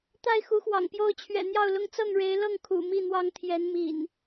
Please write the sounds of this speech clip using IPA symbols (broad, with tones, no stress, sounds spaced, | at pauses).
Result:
t̪ a˥˨ ɪ̯ x u˨˦ x w ɑ̰˨˩ ŋ p j o˦ ʊ̯ t͡ɕʰ ɥ ɛ̰˨˩ n̪ j ɑ˥˨ ʊ̯ l ʊ˥˨ ŋ t͡s ɤ˥˨ ŋ ɻ e˨˦ ɪ̯ l ɤ˥˨ ŋ kʰ ṵ˨˩ m i˥˨ n̪ w ɑ˦ ŋ t̪ʰ j ɛ˨˦ n m ḭ˨˩ n